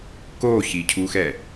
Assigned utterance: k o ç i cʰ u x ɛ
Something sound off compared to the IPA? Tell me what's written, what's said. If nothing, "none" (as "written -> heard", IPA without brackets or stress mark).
none